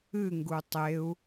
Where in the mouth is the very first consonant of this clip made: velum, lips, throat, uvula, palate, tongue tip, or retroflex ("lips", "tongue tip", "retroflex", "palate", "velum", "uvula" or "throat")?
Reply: velum